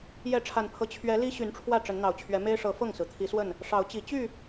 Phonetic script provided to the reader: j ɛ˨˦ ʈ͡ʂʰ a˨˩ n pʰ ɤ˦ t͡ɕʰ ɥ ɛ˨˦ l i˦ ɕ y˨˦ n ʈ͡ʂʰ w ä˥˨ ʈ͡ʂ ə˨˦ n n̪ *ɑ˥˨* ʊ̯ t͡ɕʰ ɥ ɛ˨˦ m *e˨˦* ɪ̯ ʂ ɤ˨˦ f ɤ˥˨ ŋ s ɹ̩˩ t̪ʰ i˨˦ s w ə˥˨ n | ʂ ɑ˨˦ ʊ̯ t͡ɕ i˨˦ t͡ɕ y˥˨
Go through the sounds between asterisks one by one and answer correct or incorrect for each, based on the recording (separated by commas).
incorrect, incorrect